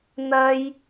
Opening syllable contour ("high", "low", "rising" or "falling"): high